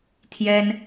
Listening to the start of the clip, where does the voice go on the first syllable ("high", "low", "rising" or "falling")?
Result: high